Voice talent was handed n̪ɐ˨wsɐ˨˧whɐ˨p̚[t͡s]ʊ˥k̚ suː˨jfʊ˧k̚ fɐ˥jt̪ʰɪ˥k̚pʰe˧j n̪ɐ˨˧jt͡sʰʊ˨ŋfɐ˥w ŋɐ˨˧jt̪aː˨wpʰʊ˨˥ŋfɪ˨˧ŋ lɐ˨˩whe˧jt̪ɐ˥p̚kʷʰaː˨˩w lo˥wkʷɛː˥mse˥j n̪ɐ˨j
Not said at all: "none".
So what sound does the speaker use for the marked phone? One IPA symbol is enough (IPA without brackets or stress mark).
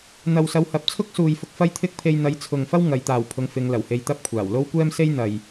t͡sʰ